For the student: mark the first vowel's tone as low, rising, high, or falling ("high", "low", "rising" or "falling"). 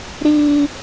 high